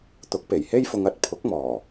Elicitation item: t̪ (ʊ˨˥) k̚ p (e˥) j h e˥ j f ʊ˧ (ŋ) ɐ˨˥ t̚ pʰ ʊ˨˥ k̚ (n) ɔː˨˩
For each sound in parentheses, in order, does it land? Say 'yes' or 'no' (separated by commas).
yes, no, yes, no